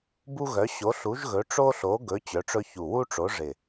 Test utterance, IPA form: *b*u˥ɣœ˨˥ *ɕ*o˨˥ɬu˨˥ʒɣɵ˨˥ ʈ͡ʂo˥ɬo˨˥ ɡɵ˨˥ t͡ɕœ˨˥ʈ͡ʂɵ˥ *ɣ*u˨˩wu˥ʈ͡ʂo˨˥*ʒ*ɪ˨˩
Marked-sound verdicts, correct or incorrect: correct, correct, incorrect, incorrect

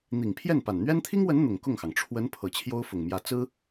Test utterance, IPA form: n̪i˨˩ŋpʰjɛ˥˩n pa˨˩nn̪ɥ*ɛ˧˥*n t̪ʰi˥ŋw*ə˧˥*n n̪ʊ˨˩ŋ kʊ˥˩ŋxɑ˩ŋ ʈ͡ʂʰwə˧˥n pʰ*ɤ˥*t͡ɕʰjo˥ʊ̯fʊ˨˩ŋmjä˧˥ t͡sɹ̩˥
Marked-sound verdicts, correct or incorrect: incorrect, correct, incorrect

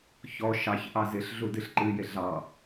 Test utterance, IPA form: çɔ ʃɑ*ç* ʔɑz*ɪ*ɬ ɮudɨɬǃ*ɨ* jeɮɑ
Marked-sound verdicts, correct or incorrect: correct, correct, correct

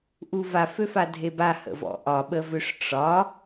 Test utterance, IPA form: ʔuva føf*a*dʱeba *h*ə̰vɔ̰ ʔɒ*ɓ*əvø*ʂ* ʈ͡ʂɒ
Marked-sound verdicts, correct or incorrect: correct, correct, correct, correct

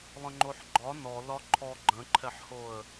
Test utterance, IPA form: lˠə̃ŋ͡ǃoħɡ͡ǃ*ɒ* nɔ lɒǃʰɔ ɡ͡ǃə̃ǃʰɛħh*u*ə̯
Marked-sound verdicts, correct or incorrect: correct, incorrect

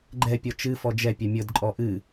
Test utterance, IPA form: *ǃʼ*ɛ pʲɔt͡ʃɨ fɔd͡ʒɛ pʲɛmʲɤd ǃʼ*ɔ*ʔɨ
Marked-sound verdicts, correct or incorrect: incorrect, correct

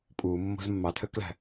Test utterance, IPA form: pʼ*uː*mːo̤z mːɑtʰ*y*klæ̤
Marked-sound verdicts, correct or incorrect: correct, incorrect

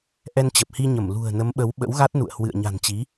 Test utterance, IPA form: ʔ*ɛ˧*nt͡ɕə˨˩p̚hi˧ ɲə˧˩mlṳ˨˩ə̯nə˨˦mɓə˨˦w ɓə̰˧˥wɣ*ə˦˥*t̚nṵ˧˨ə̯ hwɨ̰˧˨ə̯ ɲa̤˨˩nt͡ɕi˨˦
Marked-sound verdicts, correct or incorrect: correct, incorrect

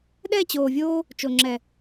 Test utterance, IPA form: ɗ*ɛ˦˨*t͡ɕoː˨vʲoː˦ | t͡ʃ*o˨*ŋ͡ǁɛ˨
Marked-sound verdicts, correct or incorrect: correct, correct

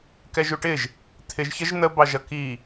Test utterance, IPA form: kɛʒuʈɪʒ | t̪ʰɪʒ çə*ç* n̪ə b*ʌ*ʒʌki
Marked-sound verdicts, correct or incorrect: incorrect, incorrect

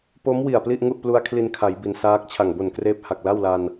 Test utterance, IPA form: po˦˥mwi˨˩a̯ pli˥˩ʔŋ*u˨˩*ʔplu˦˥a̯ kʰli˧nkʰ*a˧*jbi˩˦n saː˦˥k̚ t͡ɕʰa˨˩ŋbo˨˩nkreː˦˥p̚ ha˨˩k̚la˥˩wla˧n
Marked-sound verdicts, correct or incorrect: incorrect, incorrect

